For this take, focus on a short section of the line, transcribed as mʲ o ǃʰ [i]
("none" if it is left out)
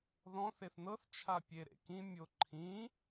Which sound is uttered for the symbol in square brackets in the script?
ĩ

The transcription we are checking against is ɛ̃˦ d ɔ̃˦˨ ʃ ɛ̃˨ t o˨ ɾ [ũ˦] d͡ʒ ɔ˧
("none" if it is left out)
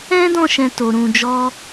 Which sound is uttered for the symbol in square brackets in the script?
ũ˨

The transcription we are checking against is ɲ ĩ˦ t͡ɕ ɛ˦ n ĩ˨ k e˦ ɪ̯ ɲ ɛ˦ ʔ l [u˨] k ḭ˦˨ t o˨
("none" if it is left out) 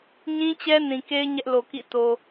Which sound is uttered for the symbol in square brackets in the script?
o˨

